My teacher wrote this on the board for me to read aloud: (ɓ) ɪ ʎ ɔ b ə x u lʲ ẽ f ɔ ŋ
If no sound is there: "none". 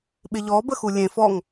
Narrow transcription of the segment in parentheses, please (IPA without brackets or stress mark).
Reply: ɓ